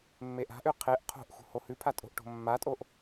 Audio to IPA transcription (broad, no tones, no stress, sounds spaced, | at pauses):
mː e ʔ a̤ ʔ ʉ qʰ e ʔ qʰ o̤ ʔ x ṳ h o h ʉ pʰ a tʼ o̤ ʔ ʈ o̤ mː a tʼ o ʔ